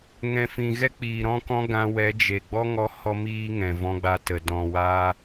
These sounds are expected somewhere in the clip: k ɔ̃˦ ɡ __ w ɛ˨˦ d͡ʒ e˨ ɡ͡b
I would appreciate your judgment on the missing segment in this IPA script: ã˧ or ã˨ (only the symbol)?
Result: ã˧